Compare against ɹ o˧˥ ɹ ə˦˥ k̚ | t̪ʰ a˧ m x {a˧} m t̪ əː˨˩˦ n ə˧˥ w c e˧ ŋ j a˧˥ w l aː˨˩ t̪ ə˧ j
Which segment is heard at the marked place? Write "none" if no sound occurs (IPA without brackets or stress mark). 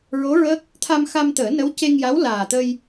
a˧